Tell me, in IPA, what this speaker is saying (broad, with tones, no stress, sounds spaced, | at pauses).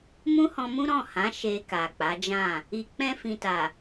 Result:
m ũ˦ h ɔ̃˧ m ũ˦ ɾ ɔ̃˦˨ h ã˨˦ ʃ e˧ k a˨ k͡p a˨˦ d͡ʒ ã˦˨ | i˨ k͡p ɛ̃˧ f ĩ˨ t a˨